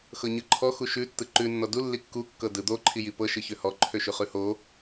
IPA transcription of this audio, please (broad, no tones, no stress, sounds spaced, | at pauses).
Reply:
x ɤ ɲ ɯ ǃʰ ɔ x u ʃ ʉ tː ɯ ǃ ʉ nː ɔ d u lː i kː u kː ɤ d ɯ d̪ o ǃʰ i j i p ɤ ʃ ɯ ç ø h ɔ ǃʰ ø ʃ ʉ χ ʉ h o